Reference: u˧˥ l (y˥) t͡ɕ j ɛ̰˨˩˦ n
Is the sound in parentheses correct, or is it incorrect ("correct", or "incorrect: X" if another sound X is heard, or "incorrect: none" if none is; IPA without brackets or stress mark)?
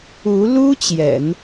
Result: incorrect: u˥